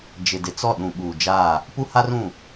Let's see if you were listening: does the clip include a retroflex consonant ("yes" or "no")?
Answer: no